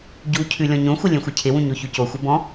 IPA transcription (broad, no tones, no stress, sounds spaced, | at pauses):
ɟ u cʰ ʉ lʲ ɔ̃ ɲ õ xʷ ɘ lʲ ẽ xʷ ɘ cʰ ɪ w ũ ɲ o ç ʉ c o xʷ ɘ b ɔ̃